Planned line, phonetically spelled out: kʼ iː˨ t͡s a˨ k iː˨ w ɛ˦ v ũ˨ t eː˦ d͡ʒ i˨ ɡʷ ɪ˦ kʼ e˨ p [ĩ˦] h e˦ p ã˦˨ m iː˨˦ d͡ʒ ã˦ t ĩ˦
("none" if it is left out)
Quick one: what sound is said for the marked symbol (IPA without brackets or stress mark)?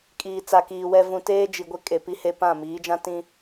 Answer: i˦